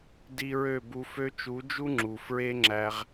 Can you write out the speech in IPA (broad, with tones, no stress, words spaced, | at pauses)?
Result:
di˧ɹø˦˨bu˧ fø˧t͡ʃu˨˦d͡ʒu˦ ŋ͡ǁu˨ fɹe˦ ŋ͡ǁæ˧ʁ